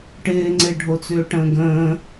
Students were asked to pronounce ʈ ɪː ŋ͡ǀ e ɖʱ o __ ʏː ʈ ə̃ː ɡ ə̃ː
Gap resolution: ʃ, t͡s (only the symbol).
t͡s